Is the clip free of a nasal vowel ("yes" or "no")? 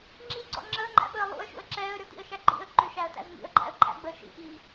yes